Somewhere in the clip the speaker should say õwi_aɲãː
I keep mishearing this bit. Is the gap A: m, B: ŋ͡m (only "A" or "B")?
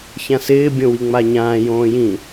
B